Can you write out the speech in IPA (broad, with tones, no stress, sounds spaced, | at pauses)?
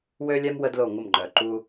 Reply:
w ø˥ lʲ ɛ˥ m w ə˥ d l o˥˩ ŋʷ ə˥˩ m ŋ͡ǃ œ˩ ǃ u˥